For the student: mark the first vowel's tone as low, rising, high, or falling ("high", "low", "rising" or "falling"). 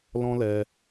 high